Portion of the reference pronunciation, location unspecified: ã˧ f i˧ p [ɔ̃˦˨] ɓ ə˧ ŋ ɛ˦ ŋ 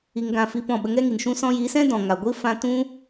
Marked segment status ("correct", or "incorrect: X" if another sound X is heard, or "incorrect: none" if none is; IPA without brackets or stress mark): correct